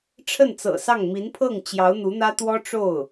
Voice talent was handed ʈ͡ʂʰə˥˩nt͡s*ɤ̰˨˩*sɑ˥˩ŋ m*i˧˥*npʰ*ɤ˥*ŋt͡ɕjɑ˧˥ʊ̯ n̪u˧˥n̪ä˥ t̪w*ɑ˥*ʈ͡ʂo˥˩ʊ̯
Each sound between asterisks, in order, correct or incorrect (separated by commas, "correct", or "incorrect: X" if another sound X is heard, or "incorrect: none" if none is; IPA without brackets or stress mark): correct, correct, incorrect: ɤ˥˩, incorrect: ɔ˥